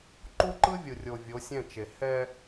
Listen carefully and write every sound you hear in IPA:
ǃu˦ǃɯ˦vʲɯ˨rʲo˨ vʲo˨˦sʲɛ̃˦˨t͡ʃe˨ hɛ˦

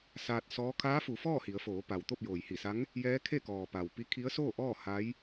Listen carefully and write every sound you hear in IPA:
saː˧t̚sɔː˧˥ kʰaː˧˥fu˩˧fɔː˥˨ hi˩˧ə̯foː˩˧ pa˩wt̪o˥˨p̚joː˩jhi˧˩ sa˧˥ŋ | jɛː˧˥kʰe˥˨kɔː˩ pa˩wpi˧˥ kʰi˧˥ə̯soː˥˨ʔɔː˥˨ ha˧˥j

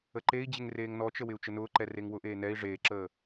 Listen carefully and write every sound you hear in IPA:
əǃei̯d͡ʑɪŋ reːŋnɔt͡ʃə wɪu̯t͡ʃənʊːǃɛ reŋwʊʔeː nɛi̯ ʐeːǁəː

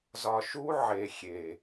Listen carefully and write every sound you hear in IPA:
zɒ˨ ʃu˦ʕe˨xʲe˨

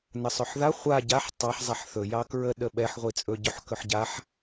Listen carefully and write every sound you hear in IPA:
nəsˤɵħða χʷa ɟaħ tˤɑħ zˤaħθɵ jɑkɹə ɗəɓɛħ ʁʷit͡sʼɵ ɟɵħkɵħɟaħ

